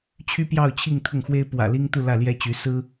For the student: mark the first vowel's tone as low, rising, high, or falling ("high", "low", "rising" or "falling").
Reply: high